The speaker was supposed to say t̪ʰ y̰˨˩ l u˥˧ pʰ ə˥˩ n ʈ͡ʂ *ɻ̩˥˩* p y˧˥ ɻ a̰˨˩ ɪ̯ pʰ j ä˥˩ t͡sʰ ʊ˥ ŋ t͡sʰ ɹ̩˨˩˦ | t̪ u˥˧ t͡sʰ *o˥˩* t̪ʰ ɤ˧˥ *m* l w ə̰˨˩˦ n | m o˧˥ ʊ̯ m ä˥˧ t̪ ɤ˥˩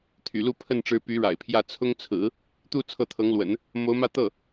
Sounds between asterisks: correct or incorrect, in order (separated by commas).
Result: incorrect, incorrect, incorrect